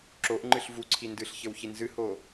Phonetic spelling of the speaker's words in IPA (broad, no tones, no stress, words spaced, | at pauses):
ǁoʔ ŋ͡ǃɨɬvuǀʰi ndɨɬ çɘwçinzɨhoː